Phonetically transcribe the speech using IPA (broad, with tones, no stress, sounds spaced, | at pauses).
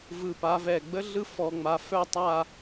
v ɯ˧˩ p a˧ v ɛ˧˩ ɡ͡b ə˥ ɮ ɯ˥ f ɔ˧ ŋ͡m a˧ f œ˥˧ tˤ a˥˧